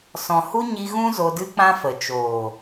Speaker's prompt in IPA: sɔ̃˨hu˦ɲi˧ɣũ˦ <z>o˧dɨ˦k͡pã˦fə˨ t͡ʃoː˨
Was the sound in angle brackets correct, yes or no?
yes